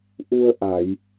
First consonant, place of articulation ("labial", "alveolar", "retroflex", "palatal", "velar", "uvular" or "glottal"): glottal